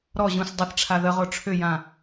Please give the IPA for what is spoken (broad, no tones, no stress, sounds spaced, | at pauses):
ɾ ɔ ʑ ũ s dˤ ə θ ʈ͡ʂʰ a ð ə ʁ o ʈ͡ʂʰ ʏ j ã